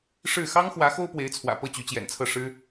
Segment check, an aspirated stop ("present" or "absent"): present